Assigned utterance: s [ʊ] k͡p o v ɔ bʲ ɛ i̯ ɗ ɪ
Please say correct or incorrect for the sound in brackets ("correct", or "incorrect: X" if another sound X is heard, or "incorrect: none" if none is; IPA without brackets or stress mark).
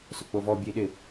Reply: correct